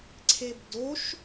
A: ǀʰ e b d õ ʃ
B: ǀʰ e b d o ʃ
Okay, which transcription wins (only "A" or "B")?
B